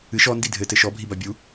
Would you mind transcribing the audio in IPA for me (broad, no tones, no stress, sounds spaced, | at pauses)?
ɨ ʃ ɔ n d i dʱ ɘ t ɘ ʃ ɔ bʱ i b a bʲ u